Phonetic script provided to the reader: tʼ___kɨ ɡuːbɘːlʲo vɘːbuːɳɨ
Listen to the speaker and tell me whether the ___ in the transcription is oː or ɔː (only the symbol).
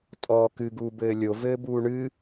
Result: ɔː